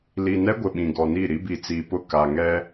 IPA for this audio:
l i˨ n ɛ˦ ɡʷ ɪ˨ ɓ ĩ˨ ɡ ɔ˨ n i˦˨ ɾ i˦ b i˨ t͡s iː˨ p ʊ˦˨ k a˨ ŋ ɛ˦

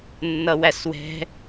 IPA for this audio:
nː ʌ w æ s w ɛ̤

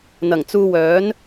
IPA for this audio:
n̪ ɐ˨˩ ŋ t͡s uː˧ w œː˨˥ n

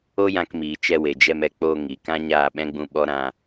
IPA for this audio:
o˦ j ã˧ k m iː˨ t͡ʃ ɛ˧ w e˨ d͡ʒ ɛ˧ m ɛ˧ k͡p o˧ ŋ i˨ k ã˦ ɲ aː˦˨ ɓ ɛ̃˦ ɡ͡b ũ˧ ɓ ɔ˦ ɾ ã˧

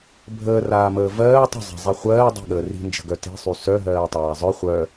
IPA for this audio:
bʱ əː r aː m əː v ɜː tˤ ə̤ zˤ a̤ zˤ i χʷ ɜː dˤ i̤ ɠ əː r i̤ n d͡ʒ ə̤ ɡ œ t i̤ sˤ y s œ ɦ ɜː tˤ aː zˤ œ χʷ œ

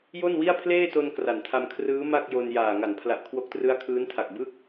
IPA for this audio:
j o˥˩ n w i˥˩ a̯ pʰ l eː˥˩ t o˧ n k r a˩˦ n tʰ a˧ m kʰ r ɯː˦˥ m a˥˩ k̚ j o˧ n j aː˨˩ ŋ a˩˦ n pʰ l a˨˩ ʔ kʰ w o˦˥ k̚ t r ɯ˦˥ a̯ kʰ ɯː˦˥ n tʰ a˨˩ k̚ b ɯ˦˥ k̚

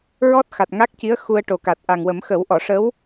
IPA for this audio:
ɹ ɔ˦˥ t̚ x a˨˩ t̚ ŋ a˦˥ k̚ c i˧˥ ə̯ x u˧ ə̯ ʈ o˨˩ k a˨˩ t̚ ʔ a˨˩ ŋ w ə˨˩˦ m x ə˨˩˦ w ʔ ɔ˨˩˨ ʂ ə˧˥ w

